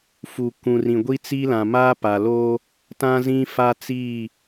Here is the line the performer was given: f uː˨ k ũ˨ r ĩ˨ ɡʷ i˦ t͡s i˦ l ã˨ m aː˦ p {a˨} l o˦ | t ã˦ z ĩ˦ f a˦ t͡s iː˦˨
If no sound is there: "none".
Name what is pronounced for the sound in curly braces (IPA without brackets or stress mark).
a˨